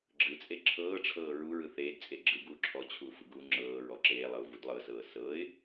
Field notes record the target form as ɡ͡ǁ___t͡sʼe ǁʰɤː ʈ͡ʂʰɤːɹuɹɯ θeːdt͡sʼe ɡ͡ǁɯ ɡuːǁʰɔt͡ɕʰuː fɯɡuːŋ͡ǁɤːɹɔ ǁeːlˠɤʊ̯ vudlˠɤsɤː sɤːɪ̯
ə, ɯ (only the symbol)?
ɯ